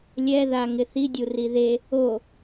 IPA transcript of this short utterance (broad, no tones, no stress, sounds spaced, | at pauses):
lʲ ɛ ð a ŋ ɪ θ i dʲ u r i ð e | o